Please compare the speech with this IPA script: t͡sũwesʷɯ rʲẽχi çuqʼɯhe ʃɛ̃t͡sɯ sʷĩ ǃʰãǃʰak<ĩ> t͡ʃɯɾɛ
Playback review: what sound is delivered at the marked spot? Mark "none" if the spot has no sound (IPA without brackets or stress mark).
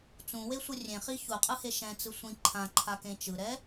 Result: ẽ